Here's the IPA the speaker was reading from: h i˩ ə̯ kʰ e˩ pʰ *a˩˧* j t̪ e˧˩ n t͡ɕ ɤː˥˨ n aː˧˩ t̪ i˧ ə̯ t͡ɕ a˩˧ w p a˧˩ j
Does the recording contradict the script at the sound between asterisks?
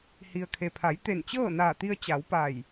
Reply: no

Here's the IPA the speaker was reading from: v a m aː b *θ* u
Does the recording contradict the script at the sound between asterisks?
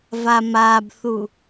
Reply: no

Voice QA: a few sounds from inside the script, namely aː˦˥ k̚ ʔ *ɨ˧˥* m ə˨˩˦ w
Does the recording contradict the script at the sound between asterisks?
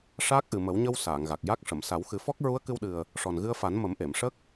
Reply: yes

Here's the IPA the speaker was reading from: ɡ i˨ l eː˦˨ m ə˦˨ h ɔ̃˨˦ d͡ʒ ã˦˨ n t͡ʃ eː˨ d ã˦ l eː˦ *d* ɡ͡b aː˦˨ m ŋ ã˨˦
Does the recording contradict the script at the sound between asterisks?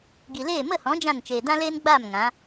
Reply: yes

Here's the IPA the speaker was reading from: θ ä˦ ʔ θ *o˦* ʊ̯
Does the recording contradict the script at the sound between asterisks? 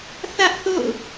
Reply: yes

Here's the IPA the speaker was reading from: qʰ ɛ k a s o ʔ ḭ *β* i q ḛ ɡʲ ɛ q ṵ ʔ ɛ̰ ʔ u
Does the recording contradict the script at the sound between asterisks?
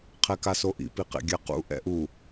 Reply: yes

